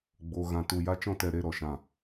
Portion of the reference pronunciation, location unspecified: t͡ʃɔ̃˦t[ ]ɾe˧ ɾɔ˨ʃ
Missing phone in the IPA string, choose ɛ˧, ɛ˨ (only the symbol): ɛ˧